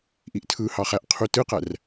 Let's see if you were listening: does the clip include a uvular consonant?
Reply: yes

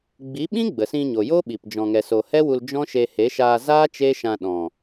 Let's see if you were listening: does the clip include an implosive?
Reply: yes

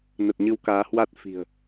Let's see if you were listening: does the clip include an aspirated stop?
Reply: no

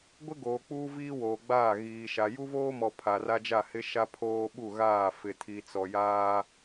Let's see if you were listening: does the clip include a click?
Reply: no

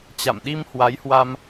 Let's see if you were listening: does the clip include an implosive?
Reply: yes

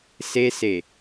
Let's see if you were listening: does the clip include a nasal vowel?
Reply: no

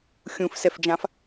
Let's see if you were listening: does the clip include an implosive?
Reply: no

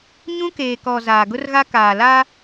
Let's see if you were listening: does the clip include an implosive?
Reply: no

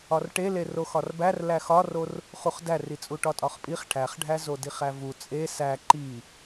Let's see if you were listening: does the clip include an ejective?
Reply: yes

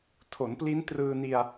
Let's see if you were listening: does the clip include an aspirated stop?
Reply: yes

